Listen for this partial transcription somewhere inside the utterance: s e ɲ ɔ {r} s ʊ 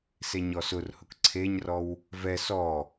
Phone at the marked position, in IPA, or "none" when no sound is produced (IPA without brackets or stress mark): none